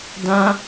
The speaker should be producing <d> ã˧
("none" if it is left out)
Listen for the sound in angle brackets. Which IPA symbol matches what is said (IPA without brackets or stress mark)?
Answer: d